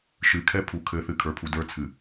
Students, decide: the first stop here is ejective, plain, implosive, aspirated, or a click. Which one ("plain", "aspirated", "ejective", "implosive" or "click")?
aspirated